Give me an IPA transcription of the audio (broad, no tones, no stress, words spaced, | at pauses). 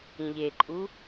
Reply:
ĩʎeǃʼu